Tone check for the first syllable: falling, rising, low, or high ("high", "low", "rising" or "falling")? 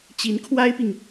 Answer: rising